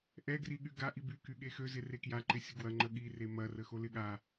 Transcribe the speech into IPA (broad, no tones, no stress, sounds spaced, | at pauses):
ʔ ɛ ɡ r i ɠ y ɡ a ʔ i b y k y ɠ e x ø z ɪ r e k j a ǃ ɪ sʲ ə ɡ w ɐ ŋ͡ǃ ə ɠ i r e m ɐ r ə x o l ɪ ɠ a